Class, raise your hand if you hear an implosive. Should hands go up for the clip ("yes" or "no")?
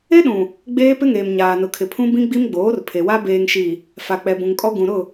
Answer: yes